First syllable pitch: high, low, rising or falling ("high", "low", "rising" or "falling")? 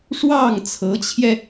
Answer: falling